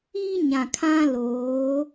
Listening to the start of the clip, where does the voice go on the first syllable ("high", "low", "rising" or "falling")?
high